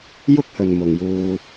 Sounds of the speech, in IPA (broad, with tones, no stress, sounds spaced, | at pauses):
j ʊ˥ k̚ h ɵ˨ n m ʊ˨ ŋ j uː˧